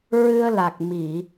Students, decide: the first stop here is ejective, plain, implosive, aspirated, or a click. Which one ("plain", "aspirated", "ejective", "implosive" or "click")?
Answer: plain